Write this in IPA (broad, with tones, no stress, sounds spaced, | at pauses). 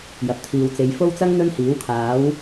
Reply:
j ɐ˨ p̚ t̪ʰ iː˨ w t͡s e˨˧ j f o˥ w t͡s ɐ˥ ŋ n̪ ɵ˥ n h iː˨˥ w kʰ aː˨˥ w